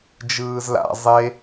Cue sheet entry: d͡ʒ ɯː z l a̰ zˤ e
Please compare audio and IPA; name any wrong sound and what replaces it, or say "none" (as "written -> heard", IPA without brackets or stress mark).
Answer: none